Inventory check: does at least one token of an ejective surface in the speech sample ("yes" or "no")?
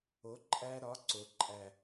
yes